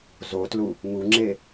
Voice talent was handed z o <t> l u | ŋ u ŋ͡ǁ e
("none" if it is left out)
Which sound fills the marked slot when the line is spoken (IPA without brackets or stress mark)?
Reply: t